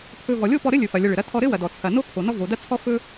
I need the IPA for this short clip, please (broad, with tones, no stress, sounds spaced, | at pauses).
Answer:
pʰ ɵ˧ v ɔ˩ lʲ o˥ p ɔ˧ ɾ ɘ˥ lʲ ɵ˩ f ɐ˩ lʲ ɐ˧ ɭ ɘ˩ ɾ ɐ˥ tʰ ɔ˧ ɾ ɘ˥ w ɐ˩ d ɔ˩ t͡sʰ ɐ˩ n o˥ kʰ o˩ n ɔ˥ v o˩ d ɐ˥ t͡sʰ ɔ˥ f ɵ˥